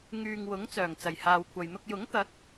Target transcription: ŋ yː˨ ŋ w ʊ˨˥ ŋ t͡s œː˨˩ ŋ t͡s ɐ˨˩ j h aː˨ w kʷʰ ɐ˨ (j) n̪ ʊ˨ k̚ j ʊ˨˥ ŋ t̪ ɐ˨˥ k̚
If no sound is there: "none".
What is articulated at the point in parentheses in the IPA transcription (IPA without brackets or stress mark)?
j